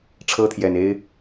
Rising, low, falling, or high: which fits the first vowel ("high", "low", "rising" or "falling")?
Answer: high